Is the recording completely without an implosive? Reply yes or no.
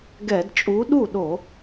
no